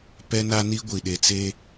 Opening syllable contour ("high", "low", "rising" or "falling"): high